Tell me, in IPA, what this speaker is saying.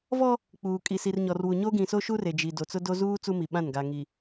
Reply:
vɔ˦ | k͡puː˨kʼi˨si˨rɲɔ˨r wu˨ɲo˦ɡĩ˨so˦ ʃu˦re˨d͡ʒi˨ do˨t͡sʊ˦do˦ zuː˦ t͡su˦mi˨ɓã˦˨n ɡa˨ŋi˨

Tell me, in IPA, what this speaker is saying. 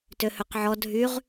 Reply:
tøhøqʕɔ dʱyʁ

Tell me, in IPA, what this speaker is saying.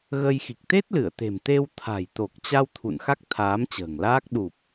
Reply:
ɣə˧j xi˨˩k̚t̪e˦˥t̚lɨ˧˩ə̯t̪e̤˨˩m t̪e˧w t̪ʰa̤˨˩j t̪o˨˩k̚ t͡ɕa˧w t̪ʰṵ˧˨nxa˦˥k̚ t̪ʰaː˨˦mt͡ɕə̤ː˨˩ŋlaː˦˥k̚ ɗu˨˩p̚

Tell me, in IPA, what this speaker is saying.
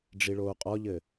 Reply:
ɖ͡ʐiɭoːqʼɔʎɘ

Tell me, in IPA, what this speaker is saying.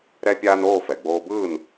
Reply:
ɾɛ˥pʲaː˥n oː˥˩fɛ˩ɡ͡boː˧bɯː˥˩n

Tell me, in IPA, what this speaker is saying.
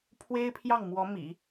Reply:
pʰwe˥ɪ̯pʰjɑ˥˩ŋmwɔ˧˥ mḭ˨˩˦

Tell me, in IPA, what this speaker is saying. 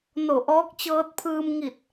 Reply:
no˧˩ʔɔː˧˥k̚ t͡ɕɤː˧t̚pʰɯː˧mŋi˧˩t̚

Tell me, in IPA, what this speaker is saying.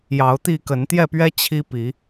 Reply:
jɑ˨˦ʊ̯t̪i˥˨kə˨˦n t̪jɛ˥˨pɥɛ˦ t͡ɕʰi˦ pi˨˦

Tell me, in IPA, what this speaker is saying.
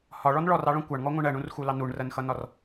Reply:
hɒɭɔn ɭɔrɑɭɔ̃ kʷɑɳŋɔŋʷɑ̃ɳ ɜɳũrxulɑ nuɳrɜnxʌnɒr

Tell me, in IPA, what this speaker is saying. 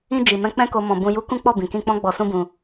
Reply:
ĩ˧ d͡ʒi˨mɛ̃˧k͡pɛ̃˦ko˧ mɔ̃˨ bũ˧ju˦ kũ˦k͡pɔ˦˨ bĩ˨kĩ˧k͡pɔ̃˦ ɡ͡bɔ˧sũ˦bũ˧

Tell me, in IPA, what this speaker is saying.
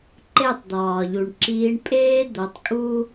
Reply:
ǃe˦˨tˤd̪ɒː˨ʎu˨ɳ ǁiː˧ɳpʼeː˦ d̪o˨˦tˤkʼu˦

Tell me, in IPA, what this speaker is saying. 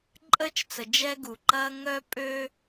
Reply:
ǃʼəː˥t͡ʃt͡sə˩ d͡ʒɛ˥ɡu˩ǃɐː˥ ŋœ˥pʼø˥

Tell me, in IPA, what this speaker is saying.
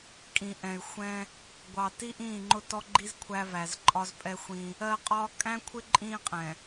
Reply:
kʼĩ˨ʔɛ̃˨y̯ xʷɛ̃˦ | ɡʷɑ˨ti˦ʔĩː˦˨ ŋ͡ǃʊ˦tɔ˦ɡ͡ǃi˦z kʷʰæ˦væ˨zǃʼɒ˦z pʼɛ˦xʷĩ˦ | ɜ˦qʼɒ˦ kʼæ̃˦kʷʰɪ˦ ǃʼĩː˦qʼɛ̃˨

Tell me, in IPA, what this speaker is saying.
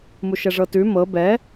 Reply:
muʃɛʐɤtʉ mɤ bɛ

